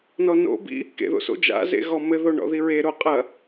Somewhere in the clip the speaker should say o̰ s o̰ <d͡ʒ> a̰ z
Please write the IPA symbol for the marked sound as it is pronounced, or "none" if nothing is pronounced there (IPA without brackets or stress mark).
d͡ʒ